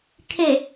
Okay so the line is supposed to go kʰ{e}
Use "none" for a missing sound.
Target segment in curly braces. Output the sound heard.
e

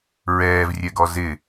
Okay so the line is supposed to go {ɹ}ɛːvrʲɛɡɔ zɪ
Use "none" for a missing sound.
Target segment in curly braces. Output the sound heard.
ɹ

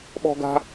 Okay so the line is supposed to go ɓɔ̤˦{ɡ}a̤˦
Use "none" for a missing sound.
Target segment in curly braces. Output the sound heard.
ɡ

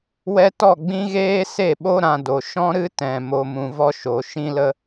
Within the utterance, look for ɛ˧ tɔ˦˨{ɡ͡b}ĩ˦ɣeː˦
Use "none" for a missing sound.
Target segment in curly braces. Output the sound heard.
ɡ͡b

